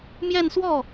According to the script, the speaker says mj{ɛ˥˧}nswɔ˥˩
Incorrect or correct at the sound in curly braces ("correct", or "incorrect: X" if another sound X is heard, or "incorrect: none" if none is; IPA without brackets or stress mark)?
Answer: correct